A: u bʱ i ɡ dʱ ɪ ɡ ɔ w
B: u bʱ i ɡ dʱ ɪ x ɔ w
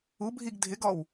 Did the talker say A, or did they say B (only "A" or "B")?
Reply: A